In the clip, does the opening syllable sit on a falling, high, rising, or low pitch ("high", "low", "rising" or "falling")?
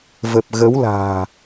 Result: low